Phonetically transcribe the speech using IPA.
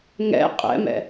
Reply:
ŋ ɛ̰ qʼ ɛ̰ m ɛ̰

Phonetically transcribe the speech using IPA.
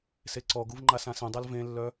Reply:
s e ǀ ɔ ɡ u v ŋ͡ǃ a s ã s ɛ̃ dˤ a l v ẽ lː œ

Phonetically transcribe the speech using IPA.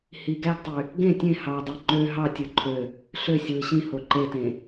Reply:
h i ɡ æ ɡ tˤ y | ɡ ẽ tʲ ẽ h ɑ dˤ i ŋ͡ǃ ø ɦ ɑ tʲ ɯ ǃʰ ø | ɬ ø sʲ w ɯ ɕ ĩ h o ǃ e t ẽ

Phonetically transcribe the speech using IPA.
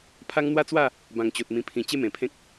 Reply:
pʰ a˧ ŋ n̪ w a˥˧ t͡s w a˥˧ | b ã˨˩ ŋ t͡ɕ o˨ t̚ m ĩ˨˩ pʰ ĩ˨˩ t͡ɕ e˥˧ m ẽ˨˩ pʰ ẽ˦ k̚

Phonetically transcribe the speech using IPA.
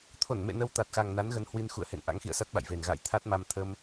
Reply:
t̪ʰ o˧˩ n m ḛ˧˨ n ə˧ w t̪ a˨˩ t̚ x a˨˩ ŋ n a˨˦ n ɣ ə˨˦ n h w i˧ n x ṵ˧˨ ə̯ h ḛ˧˨ n ʔ a̰˧˥ ŋ x ḭ˧˨ ə̯ s a˦˥ t̚ ɓ a̰˧˨ j v e˨˩ n ɣ a̰ː˧˨ j t̪ʰ a˦˥ t̚ m a˧ m t̪ʰ ə˧ m

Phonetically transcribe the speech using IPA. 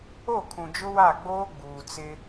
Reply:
o˦˨ kʰ ũ˨ d͡ʒ ʊ˦ w a˦˨ ɡ͡b oː˦ ɡ͡b uː˨ t͡s ɪ˦

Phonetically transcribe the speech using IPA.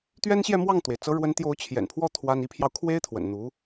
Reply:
t̪ ɥ ɛ˥ n ɕ j ɛ˥˧ m w ɑ˥˩ ŋ t̪ w e˩ ɪ̯ t͡s ɤ˧˥ ɻ w ə˧˥ n t̪ j o˧˥ ʊ̯ t͡ɕʰ j ɛ̰˨˩ n pʰ w ɔ˥˩ t̪ʰ w a˥ n i˧˥ pʰ j ɑ˧ ʊ̯ kʰ w e˥ ɪ̯ t̪ʰ w ə̰˨˩ n n̪ u˧˥

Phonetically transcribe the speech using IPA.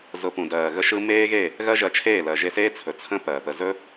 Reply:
z ʊ˨ p ũ˨ d ɜː˨ ɣ ə˧ ʃ ɯ˧ m eː˦ ɣ e˦˨ | ɣ ɜ˦ ʒ ɜ˧ t͡ʃʰ eː˦˨ l ɜ˨ ʒ e˧ s eː˦ t͡sʰ ɵ˨ t͡sʰ ə̃˦ p ɜː˨ p ə˧ z ɵ˦

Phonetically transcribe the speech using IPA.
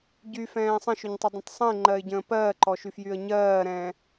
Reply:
ɟ y f ɛ̃ː sˤ ə̃ ʃ ʏ ɲ tˤ ʏ dˤ ə̃ tˤ sˤ ə̃ ɪ̯ ŋ͡ǃ ɜ ɪ̯ ɟ ə̃ː p ɜː ǃ ɔ ʃ y f j y ə̯ ɲ ɜː ɾ ɛ̃ː

